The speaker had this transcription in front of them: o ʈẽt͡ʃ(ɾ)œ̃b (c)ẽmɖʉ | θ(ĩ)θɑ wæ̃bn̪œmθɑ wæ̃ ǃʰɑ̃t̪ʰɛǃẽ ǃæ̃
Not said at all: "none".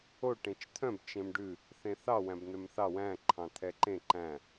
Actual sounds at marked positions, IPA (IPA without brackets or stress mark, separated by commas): t̪ʰ, t͡ʃ, ẽ